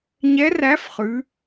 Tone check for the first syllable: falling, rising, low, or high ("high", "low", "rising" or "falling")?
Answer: rising